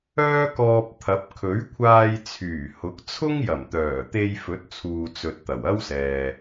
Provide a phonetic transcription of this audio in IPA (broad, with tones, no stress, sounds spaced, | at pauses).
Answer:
œː˥ k ɔː˧ p̚ t̪ʰ ɐ˨˥ p̚ kʰ ɵ˨˥ ɥ kʷʰ aː˧ j t͡sʰ yː˨˩ h ʊ˨˥ k̚ t͡sʰ ʊ˥ ŋ j ɐ˨˩ m t̪ œː˨˩ t̪ e˧ j f ɵ˨˥ t̚ t͡sʰ uː˨ t͡s ɵ˨ t̚ t̪ ɐ˨˩ w ɐ˥ w s ɛː˨